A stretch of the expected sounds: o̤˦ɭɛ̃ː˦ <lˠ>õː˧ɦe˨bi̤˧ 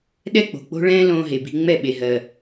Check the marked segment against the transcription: incorrect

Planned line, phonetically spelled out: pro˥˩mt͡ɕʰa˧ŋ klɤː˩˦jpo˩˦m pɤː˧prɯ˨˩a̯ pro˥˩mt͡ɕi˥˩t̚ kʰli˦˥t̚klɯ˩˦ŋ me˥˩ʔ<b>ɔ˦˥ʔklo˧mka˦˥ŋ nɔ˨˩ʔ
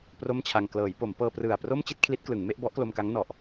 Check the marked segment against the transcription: correct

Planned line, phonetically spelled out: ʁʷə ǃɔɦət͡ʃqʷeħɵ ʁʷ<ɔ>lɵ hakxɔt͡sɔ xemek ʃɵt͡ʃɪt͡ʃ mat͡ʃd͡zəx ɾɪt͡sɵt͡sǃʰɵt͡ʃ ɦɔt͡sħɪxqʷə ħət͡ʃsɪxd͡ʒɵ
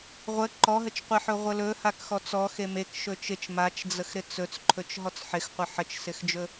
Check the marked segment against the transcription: incorrect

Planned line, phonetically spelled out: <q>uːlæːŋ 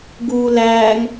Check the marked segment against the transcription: incorrect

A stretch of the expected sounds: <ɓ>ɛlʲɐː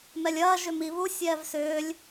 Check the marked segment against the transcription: incorrect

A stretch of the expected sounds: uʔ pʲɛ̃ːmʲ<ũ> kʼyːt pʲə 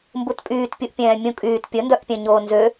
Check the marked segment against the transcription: correct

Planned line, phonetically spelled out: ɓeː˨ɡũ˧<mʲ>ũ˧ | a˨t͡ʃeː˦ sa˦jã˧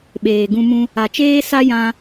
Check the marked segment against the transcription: incorrect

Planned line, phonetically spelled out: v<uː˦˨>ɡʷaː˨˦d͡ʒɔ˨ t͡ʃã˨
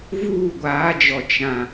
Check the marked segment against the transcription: correct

